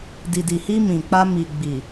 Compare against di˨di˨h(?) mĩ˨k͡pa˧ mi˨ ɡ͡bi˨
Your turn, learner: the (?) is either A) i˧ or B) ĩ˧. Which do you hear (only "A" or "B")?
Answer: A